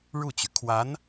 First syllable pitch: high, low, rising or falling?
falling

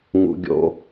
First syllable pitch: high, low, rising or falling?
high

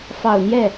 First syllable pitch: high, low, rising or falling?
low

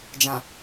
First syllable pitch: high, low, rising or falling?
low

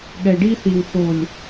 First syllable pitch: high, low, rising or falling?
low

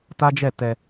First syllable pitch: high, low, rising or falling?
high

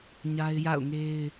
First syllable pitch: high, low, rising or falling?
high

